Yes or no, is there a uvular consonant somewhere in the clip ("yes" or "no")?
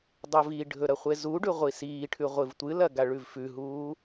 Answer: yes